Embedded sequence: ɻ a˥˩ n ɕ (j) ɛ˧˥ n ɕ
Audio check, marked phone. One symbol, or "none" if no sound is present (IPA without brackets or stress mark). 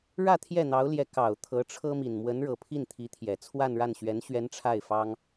ɥ